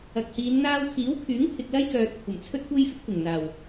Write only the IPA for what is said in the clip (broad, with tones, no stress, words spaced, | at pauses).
ɐ˨k̚hiː˨˧n n̪aː˧wkʰiː˨˥wpʰyː˨˥ŋpʰɪ˨k̚ lɐ˥jkœː˨t̚ kʷʰɐ˨˩mt͡sʰɵ˥t̚kʷe˥jfɪ˥k̚ pɪ˨˩ŋn̪aː˨˩w